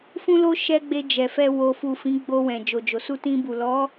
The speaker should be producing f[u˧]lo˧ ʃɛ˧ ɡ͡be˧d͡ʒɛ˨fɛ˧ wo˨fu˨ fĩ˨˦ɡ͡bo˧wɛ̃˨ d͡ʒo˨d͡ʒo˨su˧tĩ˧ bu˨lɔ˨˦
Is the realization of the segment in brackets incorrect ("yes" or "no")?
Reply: yes